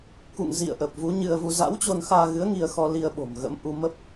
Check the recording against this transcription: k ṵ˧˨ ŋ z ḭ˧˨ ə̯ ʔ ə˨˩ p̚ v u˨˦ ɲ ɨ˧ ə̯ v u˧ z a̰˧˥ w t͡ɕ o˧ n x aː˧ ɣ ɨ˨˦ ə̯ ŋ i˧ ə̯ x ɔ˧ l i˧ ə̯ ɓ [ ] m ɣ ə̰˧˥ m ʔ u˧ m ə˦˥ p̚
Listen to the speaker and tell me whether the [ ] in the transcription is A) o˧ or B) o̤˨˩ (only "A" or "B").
B